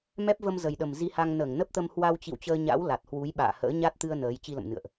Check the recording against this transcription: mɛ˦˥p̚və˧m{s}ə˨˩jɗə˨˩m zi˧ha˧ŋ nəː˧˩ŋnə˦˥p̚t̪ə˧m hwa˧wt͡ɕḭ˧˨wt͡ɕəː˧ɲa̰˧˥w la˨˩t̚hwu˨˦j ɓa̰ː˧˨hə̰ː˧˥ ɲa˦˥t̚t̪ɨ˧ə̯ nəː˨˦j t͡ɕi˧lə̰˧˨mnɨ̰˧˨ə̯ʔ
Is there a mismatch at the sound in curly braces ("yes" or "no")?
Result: yes